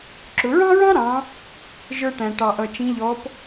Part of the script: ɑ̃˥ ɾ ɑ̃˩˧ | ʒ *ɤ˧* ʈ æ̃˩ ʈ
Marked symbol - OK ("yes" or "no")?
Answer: no